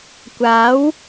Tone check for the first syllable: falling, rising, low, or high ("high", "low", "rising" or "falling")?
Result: rising